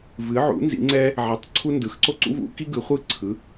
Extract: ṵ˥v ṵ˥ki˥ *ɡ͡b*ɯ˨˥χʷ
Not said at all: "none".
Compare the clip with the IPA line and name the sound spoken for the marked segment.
ɡ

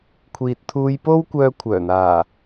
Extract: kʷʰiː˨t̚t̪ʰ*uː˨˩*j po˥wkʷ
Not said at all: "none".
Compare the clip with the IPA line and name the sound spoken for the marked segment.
uː˧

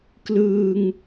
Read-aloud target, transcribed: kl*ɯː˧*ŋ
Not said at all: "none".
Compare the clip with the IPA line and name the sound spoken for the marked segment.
ɯː˧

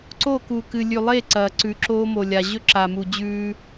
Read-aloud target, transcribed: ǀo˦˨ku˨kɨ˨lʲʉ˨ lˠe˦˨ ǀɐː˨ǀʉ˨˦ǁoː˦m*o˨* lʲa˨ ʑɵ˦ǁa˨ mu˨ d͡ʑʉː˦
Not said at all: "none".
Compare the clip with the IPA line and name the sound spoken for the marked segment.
o˨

